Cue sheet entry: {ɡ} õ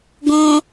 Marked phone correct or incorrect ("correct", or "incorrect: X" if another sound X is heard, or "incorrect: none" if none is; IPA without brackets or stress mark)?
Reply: correct